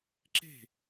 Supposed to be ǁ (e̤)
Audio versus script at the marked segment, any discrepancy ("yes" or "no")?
no